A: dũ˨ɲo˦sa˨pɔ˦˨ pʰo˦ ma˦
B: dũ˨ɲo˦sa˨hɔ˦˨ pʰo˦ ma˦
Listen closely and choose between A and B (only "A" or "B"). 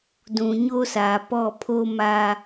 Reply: A